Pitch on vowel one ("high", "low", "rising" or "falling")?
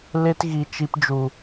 high